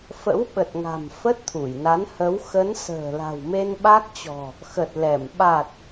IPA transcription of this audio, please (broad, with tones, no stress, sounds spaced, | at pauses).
f ə̰˧˥ w ɓ ə˨˩ t̚ ŋ a̤˨˩ m f ə˦˥ t̚ t̪ʰ u˧˩ j n a˨˦ n h ə˨˦ w x ə˨˦ n s ə̤ː˨˩ l a̤˨˩ w m e˧ n ɓ a˦˥ k̚ t͡ɕ ɔ̤˨˩ | x ə˨˩ t̚ l ɛ˧˩ m ɓ a˨˩ t̚